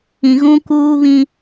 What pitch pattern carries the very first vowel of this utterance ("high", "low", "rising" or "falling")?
low